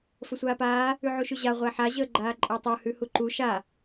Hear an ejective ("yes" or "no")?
yes